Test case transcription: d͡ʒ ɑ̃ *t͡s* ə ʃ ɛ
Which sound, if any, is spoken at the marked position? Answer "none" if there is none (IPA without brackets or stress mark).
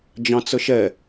t͡s